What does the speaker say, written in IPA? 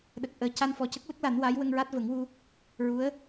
ɗ ə˨˩ k̚ ʔ əː˨˩ c a˧ n f ɔ˨˩ c ə˦˥ k̚ l ə˦˥ k̚ l a˨˩˦ n w a˧˥ j w ə˧ ŋ ɹ a˦˥ t̚ v ə˨˩˦ ŋ w u˧ | ɹ u˧˥ ə̯

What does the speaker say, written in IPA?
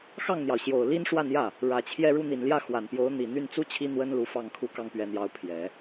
x ɑ˥˩ ŋ n̪ j ɑ˩ ʊ̯ ɕ j o˨˩ ʊ̯ l i˥ n ʂ w a˥˧ n j ä˥˩ | ɻ ä˨˩ t͡ɕʰ j ɛ˥˧ ɻ u˥˩ n̪ i˨˩ n l j ä˥˩ x w a˨˩ n p j o˧˥ ʊ̯ n̪ i˨˩ n̪ y˥˩ n t͡s u˥ t͡ɕʰ i˥ n̪ w ə˥ n l u˧˥ f ɑ˥˩ ŋ kʰ u˥ k ɑ˥ ŋ p ɥ ɛ˧˥ n̪ j ɑ˧˥ ʊ̯ pʰ j ɛ˨˩˦

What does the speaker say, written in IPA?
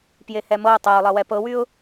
p j e h ɛ m ɤ ʊ̯ tˤ ɛ ʊ̯ lˠ ʌ w ɛ p ɤ w y ʊ̯

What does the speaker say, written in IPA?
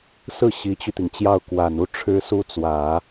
s ɹ̩˥˩ ɕ i˧˥ t͡ɕ y˧ t̪ i˩ ŋ t͡ɕ j ɑ˥˩ ʊ̯ k w a˨˩ n u˥˩ ʈ͡ʂʰ ɻ̩˥ s u˥ t͡s w ä˨˩˦

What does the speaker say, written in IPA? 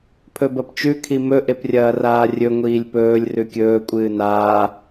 pʰ ɵ b ɐ p t͡ʃ ʉ kʰ i m ɵ ʔ e p rʲ ɐː r aː rʲ ɵ ŋʷ iː lʲ p ɵː lʲ r ʉ kʲ ɵː kʷʼ ɨː n aː

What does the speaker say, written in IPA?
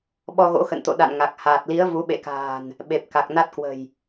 ɓ ɔ˧ ɣ o̰˧˥ x ə̰˧˨ n t̪ o̰˧˨ ɗ a̰˧˨ n ŋ a˨˩ k̚ h aː˨˩ t̚ l i˨˦ ə̯ v u˨˦ ɓ ḛ˧˨ k a̤ː˨˩ n | ɓ e˨˩ p̚ k a˨˩ k̚ n a˦˥ t̚ k w ə̤˨˩ j

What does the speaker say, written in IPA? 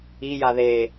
i j a ð e

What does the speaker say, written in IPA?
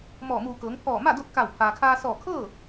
m ɔː˧˩ m uː˧˩ k ɤː˩˧ ŋ pʰ ɔː˧˩ m a˥˨ d o˥˨ t̚ k a˧˩ w pʰ aː˩ kʰ aː˧ s ɔː˧˩ kʰ ɤː˥˨

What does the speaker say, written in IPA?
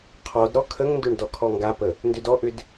qʰ ɔ d ɾ ɔ kʰ ə ŋ n d ʏ ɳ d ɔ kʰ ɔ ŋ ɡ a p ə | n d ʏ d ɔ ʔ ʏ d

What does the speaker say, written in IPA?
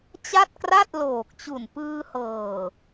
t͡ɕ a˥˩ t̚ k r a˥˩ t̚ l oː˨˩ k̚ t͡ɕ u˨˩ n p ɯː˧ h ɤː˨˩

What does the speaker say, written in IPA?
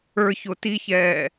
ə˞ ç o t i ç ɛː

